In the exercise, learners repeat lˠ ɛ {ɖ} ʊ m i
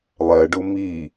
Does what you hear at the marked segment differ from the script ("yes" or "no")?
no